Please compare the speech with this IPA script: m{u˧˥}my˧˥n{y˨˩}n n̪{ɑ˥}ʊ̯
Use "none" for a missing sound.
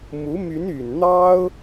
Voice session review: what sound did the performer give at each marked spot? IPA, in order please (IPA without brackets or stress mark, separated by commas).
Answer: u˧˥, y˨˩, ɑ˥